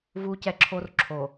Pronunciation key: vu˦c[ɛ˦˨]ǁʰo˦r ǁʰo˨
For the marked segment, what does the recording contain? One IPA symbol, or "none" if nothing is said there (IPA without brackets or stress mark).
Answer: ɛ˦